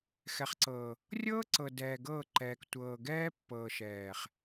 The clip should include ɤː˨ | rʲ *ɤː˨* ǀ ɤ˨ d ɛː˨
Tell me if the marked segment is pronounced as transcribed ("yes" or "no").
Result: no